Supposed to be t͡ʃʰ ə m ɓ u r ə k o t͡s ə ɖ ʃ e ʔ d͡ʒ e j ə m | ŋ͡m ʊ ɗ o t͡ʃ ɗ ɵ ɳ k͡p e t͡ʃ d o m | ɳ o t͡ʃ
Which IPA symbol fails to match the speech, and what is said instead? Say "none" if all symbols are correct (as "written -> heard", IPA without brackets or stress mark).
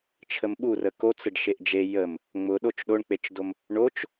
ɵ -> o